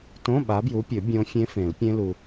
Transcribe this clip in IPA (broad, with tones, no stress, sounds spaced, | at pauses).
t õ˧˥˧ ɓ a˨˦ b j u˨˦ pʲ ɵ˨˩˦ bʲ õ˦˥ fʲ ẽ˦˥ f ẽ˨˩˦ l pʲ ẽ˦˥ l u˨